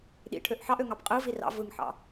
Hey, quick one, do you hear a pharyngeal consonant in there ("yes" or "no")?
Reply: yes